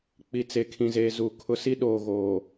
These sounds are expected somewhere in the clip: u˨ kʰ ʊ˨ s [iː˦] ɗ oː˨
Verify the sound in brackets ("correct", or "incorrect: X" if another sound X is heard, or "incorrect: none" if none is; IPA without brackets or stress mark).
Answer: incorrect: i˦